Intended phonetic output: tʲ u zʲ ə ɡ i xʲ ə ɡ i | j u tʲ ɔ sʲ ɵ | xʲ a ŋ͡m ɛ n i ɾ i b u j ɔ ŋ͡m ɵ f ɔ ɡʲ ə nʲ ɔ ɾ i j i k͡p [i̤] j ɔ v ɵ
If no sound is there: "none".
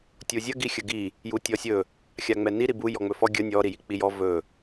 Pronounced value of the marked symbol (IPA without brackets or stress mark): i